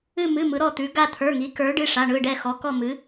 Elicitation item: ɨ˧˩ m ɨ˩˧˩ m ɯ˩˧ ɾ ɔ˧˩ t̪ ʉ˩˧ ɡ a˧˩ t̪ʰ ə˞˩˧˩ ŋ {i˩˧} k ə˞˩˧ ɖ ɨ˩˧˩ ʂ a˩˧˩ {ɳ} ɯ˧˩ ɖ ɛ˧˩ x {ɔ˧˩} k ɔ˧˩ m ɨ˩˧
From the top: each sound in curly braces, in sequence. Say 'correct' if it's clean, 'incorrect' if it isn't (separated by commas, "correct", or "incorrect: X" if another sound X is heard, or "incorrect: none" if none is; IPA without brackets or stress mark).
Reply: correct, correct, incorrect: ɔ˩˧